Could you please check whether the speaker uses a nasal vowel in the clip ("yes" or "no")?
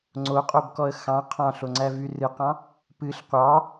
yes